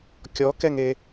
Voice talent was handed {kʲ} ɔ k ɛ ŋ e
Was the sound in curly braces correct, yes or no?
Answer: yes